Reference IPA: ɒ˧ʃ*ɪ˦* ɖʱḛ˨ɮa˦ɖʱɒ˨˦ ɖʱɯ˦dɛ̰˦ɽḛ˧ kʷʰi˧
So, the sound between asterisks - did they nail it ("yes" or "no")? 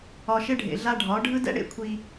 yes